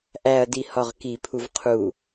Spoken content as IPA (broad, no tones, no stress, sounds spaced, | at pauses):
ʔ æ ɐ̯ d i h ɒ ʁ k i pʰ u v qʰ u